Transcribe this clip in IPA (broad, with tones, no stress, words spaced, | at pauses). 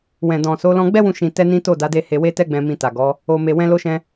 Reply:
wɛ̃˨dɔ̃˨so˨˦ lɔ̃˧ɡ͡bɛ˦wũ˧ ʃĩ˧tɛ˦ nĩ˦to˦˨da˨˦de˦˨ he˧we˦tɛ˦ɡ͡bɛ̃˧ mĩ˧ta˨ɡɔ˨˦ | o˧me˧ wɛ̃˦lo˦ʃɛ̃˦